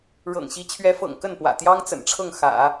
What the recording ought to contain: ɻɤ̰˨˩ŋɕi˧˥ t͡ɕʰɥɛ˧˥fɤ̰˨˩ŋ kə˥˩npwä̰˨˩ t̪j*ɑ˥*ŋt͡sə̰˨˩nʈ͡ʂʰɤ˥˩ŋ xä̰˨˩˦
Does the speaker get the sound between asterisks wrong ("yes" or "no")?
no